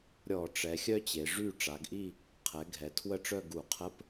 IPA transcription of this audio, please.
ɾʲɔ˧˩˧ʈ͡ʂɛ˩˧xʲœ˥ t͡ɕe˩˧ʐy˥˧ ʈ͡ʂa˩˧ɡʔi˥˧ | qʰɛ˩˧ɡʱɛ˩˧ tʰwə˥˧ʈ͡ʂœ˥˧ ɡu˧˩˧qʰə˧˥˧p

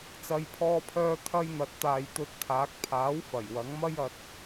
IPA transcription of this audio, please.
t͡sɐ˨˧jpʰɔː˧pʰœː˧ t̪ʰɐ˧jn̪ɐ˨t̚t̪aː˨j t̪ɵ˧t̚t̪ʰaː˨˥k̚ pʰaː˨˥wfɐ˨˩j wɐ˨˥ŋmɐ˥jɐ˧t̚

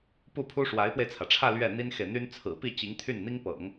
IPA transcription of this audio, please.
pu˥˩pʰu˥ ʂwa˧˥ɪ̯pwe˧ɪ̯t͡sʰä˩ʈ͡ʂʰä˥˧ lɥɛ˥˩n̪i˥nxe˨ɪ̯n̪y˥n t͡sʰɹ̩˨˩pi˥˩ t͡ɕi˧˥ŋt̪ʰy˥˩nn̪i˥ŋpɤ̰˨˩˦ŋ

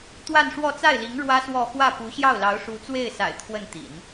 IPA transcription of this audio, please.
t̪wa˥˧nʂwɔ˥˧ t͡sa˥˩ɪ̯li˧˥ŋ ɻwä˥swɔ˥˧ xwä˥˩ pu˧˥ɕjɑ˥˩ʊ̯lɑ˧˥ʊ̯ ʂu˧˥t͡swe˥˩ɪ̯sa̰˨˩ɪ̯ t̪ʰwə˥˩nt̪ḭ˨˩˦n

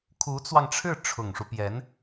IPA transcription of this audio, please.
kʰu˧˥t͡swɑ˧ŋʈ͡ʂʰɻ̩˥˩ ʈ͡ʂʰʊ˨˩ŋʂu˦pjɛ˧˥n

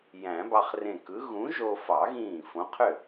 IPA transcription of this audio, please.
jæ̃˨˩˦bɑ˧χrẽ˧˩kɯ˨˥ ɣũ˨˥ʒo˧fɑ˨˩˦ɣĩː˧˩ fõ˨˥qʰø˥˩

